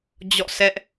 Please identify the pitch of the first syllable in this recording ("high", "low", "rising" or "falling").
falling